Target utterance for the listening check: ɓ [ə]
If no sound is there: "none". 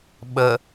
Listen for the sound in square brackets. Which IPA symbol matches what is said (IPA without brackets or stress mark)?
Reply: ə